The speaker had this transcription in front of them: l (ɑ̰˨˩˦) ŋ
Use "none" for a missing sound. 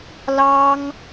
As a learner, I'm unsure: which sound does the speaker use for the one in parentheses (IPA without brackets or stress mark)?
ɑ˥